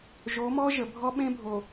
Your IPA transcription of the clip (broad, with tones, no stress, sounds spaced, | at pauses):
ʒ o˨˦ m ɔ˦ ʒ ə˨ bʱ ɔ˦ ɓ ẽ˦ bʱ o˨